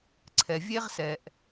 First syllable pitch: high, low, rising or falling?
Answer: low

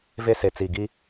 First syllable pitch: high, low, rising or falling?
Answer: high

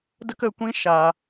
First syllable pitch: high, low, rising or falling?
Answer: high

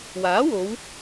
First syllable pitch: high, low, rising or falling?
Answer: rising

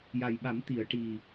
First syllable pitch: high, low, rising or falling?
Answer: low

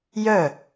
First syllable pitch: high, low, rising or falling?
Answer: falling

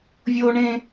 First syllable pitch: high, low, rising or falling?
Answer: high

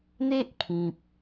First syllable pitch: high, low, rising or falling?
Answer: high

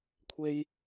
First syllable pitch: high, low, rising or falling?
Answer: high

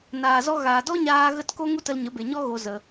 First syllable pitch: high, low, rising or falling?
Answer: low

